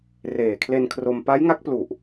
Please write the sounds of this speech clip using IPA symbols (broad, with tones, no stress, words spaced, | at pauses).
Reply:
reː˨˩kʰle˧nkʰro˧m pa˦˥jŋa˦˥k̚plu˨˩ʔ